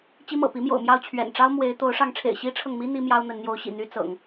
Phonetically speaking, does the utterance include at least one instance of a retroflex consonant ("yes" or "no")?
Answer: yes